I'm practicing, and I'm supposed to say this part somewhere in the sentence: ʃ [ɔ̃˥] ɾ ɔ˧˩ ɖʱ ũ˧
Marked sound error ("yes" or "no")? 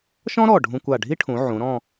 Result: no